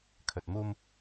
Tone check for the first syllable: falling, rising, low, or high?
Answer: low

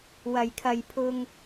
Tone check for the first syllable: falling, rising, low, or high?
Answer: low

